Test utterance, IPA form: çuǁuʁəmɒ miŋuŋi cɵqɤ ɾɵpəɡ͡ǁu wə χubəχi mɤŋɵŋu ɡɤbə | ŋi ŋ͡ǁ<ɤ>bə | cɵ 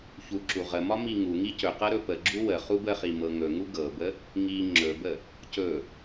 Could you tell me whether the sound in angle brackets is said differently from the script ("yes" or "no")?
yes